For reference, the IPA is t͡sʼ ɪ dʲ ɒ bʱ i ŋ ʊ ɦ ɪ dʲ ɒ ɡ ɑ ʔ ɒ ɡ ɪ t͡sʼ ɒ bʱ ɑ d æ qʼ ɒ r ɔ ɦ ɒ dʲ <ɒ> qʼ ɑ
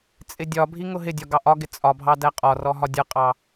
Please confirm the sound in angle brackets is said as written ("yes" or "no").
no